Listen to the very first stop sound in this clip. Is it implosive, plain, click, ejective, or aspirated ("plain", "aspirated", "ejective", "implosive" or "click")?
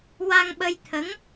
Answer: implosive